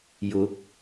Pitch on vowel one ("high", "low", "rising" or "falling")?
rising